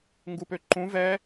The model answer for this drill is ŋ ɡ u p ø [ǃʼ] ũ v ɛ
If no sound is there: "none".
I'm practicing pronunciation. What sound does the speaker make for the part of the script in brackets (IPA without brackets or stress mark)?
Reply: ǃ